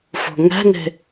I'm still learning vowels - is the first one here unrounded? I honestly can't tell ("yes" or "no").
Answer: no